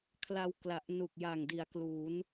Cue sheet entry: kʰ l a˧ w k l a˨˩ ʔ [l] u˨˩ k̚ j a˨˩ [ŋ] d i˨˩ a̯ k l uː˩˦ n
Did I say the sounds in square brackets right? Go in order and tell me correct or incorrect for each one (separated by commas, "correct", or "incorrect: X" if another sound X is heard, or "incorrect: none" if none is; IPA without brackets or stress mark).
incorrect: n, correct